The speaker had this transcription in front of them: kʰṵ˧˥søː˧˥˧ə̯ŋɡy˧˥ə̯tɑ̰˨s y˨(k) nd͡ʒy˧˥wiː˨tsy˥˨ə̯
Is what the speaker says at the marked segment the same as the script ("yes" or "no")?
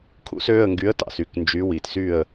yes